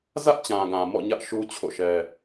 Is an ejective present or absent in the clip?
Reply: absent